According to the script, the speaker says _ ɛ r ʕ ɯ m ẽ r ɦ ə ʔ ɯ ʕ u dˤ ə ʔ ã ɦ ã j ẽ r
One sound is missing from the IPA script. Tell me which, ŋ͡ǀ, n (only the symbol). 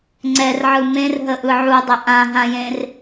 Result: ŋ͡ǀ